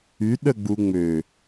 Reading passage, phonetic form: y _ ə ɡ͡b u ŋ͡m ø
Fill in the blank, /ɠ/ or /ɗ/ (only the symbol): ɗ